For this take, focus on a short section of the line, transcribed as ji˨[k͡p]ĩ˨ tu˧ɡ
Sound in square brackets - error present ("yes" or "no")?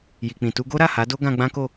no